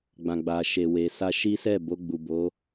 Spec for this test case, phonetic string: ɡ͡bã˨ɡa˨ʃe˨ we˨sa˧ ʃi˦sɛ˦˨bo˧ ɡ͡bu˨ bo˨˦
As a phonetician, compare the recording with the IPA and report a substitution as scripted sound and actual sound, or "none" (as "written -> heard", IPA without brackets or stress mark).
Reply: ɡ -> ɡ͡b